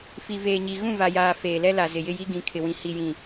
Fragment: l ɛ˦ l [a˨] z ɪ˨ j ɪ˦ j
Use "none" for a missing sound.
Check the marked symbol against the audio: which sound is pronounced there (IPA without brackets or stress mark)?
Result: a˨